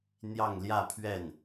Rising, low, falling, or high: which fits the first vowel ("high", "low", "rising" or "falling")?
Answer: falling